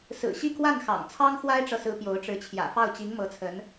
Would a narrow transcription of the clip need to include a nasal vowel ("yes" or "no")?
no